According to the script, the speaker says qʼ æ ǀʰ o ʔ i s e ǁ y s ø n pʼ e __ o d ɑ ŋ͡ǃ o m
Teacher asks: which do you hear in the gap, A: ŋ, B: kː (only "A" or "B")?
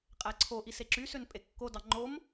B